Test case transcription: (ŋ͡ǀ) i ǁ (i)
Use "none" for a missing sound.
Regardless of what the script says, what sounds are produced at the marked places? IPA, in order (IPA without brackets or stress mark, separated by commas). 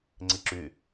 ŋ͡ǀ, y